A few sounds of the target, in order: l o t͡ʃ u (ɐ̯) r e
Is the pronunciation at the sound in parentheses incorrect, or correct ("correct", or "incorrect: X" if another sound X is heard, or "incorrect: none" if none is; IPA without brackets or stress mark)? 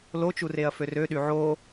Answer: incorrect: none